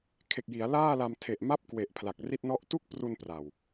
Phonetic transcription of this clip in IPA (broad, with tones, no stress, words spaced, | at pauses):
kʰe˨˩k̚ji˩˦a̯ laː˥˩la˧mtʰe˨˩ʔ ma˥˩p̚kwe˨˩ʔ pʰla˨˩k̚ri˥˩t̚nɔ˥˩ʔ tu˥˩k̚pru˧n pra˨˩w